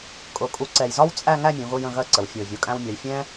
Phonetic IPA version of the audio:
kʼ ʊ˧˩ kʼ u˧ ǀ ɛ˧˩ j z ɒ˥ w t͡sʼ æ˥˧ ŋ æ˥˧ mʲ ũ˩˧ ɣ ʊː˧ j ə̃˧˩ ɣ ɜ˥˧ ǀ ə˩˧ w fʲ ʊː˧˩ vʲ u˩˧ kʼ æ̃˧ w mʲ ɒ˩˧ j fʲ ɛ̃ː˥

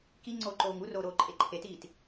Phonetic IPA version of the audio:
k i ŋ͡ǀ oː ǃ oː ŋ u r oː ɾ oː ǃʼ e ǃʰ e t iː t

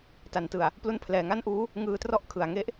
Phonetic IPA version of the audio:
t a˨˩ n t ɯ˨˩ a̯ | p l u˦˥ n pʰ l ɛː˩˦ ŋ a˥˩ n ʔ uː˦˥ | ŋ ɯː˧ t r ɔ˥˩ ʔ kʰ ɯ˨˩ a̯ ŋ e˦˥ ʔ

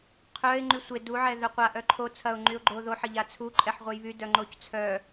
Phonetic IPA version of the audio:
qʰ œ ɪ̯ ŋ͡ǃ y sʷ e d u ʕ ɛ ð œ qʷ a ʔ œ ǃʰ o t͡sʰ ɐ ʊ̯ ŋ͡ǃ y ʊ̯ ɡ͡ǃ o ð o ħ ɐ ʎ a t͡sʰ u ǃʼ ɛ ħ ʁʷ œ j β y d œ ŋ͡ǃ o c t͡sʰ œ

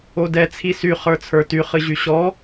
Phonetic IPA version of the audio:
o d ɛ t͡sʰ i s y χ ə˞ t͡sʰ ə˞ t y χ ɨ ʑ y ɕ ɔ

